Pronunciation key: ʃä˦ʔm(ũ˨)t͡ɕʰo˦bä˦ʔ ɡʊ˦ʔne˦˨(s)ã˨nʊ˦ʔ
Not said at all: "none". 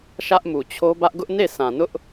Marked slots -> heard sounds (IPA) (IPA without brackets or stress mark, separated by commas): u˨, s